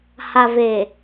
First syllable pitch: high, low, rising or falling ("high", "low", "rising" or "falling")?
low